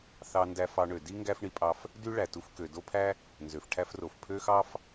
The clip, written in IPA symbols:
θ ɑ˧ n d æ˧ f ɑ˧ ɳ ø˩ d i˥ ŋ ɡ æ˥ f ɳ i˧ pʼ ɑ˧ f | d y˥ ɭ æ˩ t u˧ f k ø˩ d o˥ pʰ æ˥ | n z ø˩ f ʈʰ æ˥ f r o˩ f pʰ ø˥ x ɑ˥ f

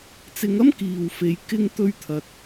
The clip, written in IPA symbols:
t͡s ɪ˨˧ ŋ ɐ˥ m k iː˨ w f e˨˧ j k ɪ˥ ŋ t̪ ɵ˥ ɥ t̪ʰ ɐ˧ t̚

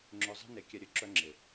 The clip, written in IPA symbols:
ŋ͡ǁ ʏ˧ zˤ ɛ̤˦ n e˨˦ kʲ ɛ˧ ɾʲ ø˨ ǁ œ˧ ŋ͡ǁ ɪ˨

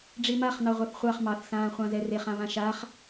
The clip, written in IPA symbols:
ɖ͡ʐ i m a χ n ɑ ʁʷ a θ χʷ ɑ χ m ɑ θ s ãː χʷ ɑ̃ z ɛ r e χ ã β ã ʃ a χ

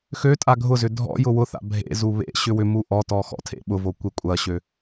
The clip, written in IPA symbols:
x ø tʼ a ɡʱ ʊ z ʏ dʱ ɔ̰ j ʊ w ʊ θ a̰ bʱ ḛ z u β ḛ ɕ ʏ w ʏ m u ʔ ɔ t ɔ x ɔ̰ tʰ ḛ ɓ ʊ v o kʷ e kʷʼ ɐ ɕ ø

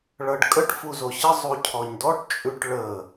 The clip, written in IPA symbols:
ɭ ʌ ɖ kʼ ə ʈ f u z o ɕ ə zˤ u cʰ ɔ ɲ d ɔ ʈ t͡ʃʼ ʉ ʈ ɭ ə

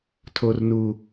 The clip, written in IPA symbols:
tʰ o˨ r n u˨

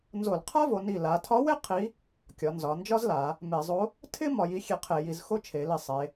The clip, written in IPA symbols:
n z o˧˩˧ l qʰ a˥ v o˩˧ n i˧˩ l a˩˧ tʰ ɒ˧˥ w e˥ qʰ i˧˥ | kʲ ɒ˩˧ n z ɒ˩˧ n d͡ʒ ɒ˥ z l a˩˧ | m e˧˩˧ zˤ o˧˥ | tʰ ɪ˥ m ɒ˩˧ j i˧˥ xʲ e˧˩ qʰ e˧˩˧ j i˩˧ z x o˥ t͡ʃʰ e˩˧ l i˧˩ sˤ e˩˧

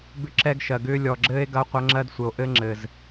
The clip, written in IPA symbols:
b ʏ˦ ǁ ɛ˦ ɡ ʃ ɜ˨ ɡ ʏː˦ lʲ ɔ˨ ɡ͡ǁ ɘː˦ e̯ ɡ ɐ˦ o̯ qʷ ɐ˦ ŋ͡ǁ ɜ˦ d sʷ ɘ˨ o̯ ʔ ɘ˦ ŋ͡ǁ ɘ˨ z

